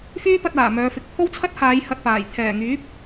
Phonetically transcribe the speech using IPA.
fyː˥pɐ˧t̚aː˨˩ mœː˨˧fɪ˨˥k̚ pʰo˥wt͡sʰɐ˥t̚haː˨˧j hɐ˧t̚paː˨˩j t̪ʰɛː˨˩ŋyː˨˥p̚

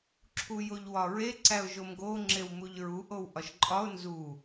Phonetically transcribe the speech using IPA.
ǁʰujoʎwɒɹe ǀæʊ̯ʒomɡo ŋ͡ǁewmuʎɹu ʔowʔɒʃǃʼɒʊ̯ nzu

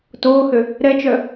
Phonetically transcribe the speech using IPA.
toːhø | ɾɛt͡ʃœ

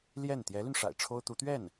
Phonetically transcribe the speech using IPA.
ljɛ˥˩n t̪jɛ˧˥ly˧nʂa̰˨˩ɪ̯ ʈ͡ʂʰo˥ʊ̯t̪u˧˥ t̪ɥɛ˥˩n

